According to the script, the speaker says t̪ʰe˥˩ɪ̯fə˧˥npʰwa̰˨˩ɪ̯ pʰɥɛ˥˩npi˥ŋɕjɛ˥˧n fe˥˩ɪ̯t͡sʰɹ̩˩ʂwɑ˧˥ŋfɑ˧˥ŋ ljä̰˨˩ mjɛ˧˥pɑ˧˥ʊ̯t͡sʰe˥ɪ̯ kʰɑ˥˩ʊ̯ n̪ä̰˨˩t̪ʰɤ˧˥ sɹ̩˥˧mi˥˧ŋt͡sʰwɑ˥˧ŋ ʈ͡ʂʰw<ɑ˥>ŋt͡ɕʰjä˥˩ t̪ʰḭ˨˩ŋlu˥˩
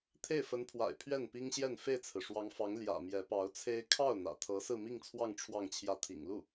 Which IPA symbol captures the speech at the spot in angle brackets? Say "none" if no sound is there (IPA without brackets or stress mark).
ɑ˥˧